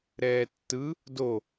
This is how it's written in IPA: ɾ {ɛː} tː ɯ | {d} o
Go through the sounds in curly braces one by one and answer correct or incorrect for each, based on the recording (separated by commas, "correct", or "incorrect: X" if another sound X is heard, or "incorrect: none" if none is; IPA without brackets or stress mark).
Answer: correct, correct